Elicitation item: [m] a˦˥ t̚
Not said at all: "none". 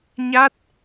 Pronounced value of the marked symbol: ɲ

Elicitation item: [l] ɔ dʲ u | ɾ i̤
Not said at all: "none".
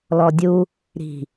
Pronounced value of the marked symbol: l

